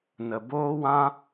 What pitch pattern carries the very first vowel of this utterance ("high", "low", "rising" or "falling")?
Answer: low